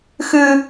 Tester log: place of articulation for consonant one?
velar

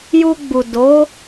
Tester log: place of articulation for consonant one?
palatal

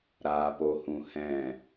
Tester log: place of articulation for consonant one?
alveolar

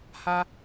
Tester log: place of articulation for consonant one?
glottal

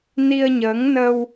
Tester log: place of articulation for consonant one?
alveolar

